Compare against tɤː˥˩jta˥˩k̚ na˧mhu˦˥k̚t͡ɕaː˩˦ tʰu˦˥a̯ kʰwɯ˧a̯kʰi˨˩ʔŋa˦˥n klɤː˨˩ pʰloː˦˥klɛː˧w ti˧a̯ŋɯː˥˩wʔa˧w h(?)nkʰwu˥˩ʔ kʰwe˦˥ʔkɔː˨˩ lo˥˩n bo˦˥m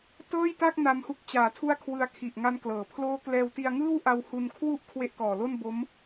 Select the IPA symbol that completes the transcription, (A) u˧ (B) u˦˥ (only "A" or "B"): A